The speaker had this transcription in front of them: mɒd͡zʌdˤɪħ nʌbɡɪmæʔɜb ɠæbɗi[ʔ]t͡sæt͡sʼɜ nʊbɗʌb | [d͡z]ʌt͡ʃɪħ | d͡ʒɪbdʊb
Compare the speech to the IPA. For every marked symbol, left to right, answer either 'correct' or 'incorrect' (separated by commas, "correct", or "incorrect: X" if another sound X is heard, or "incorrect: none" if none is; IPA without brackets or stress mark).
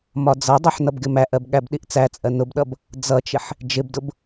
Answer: correct, correct